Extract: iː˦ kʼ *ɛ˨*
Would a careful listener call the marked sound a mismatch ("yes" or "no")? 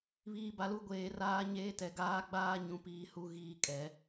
yes